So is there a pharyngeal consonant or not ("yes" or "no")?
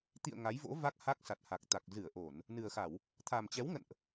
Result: no